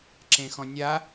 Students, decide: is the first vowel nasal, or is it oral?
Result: nasal